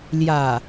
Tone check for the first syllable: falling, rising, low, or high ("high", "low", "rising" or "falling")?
low